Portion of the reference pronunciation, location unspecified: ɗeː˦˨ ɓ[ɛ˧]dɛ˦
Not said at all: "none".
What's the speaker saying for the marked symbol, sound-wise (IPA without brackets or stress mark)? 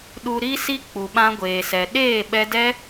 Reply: ɛ˧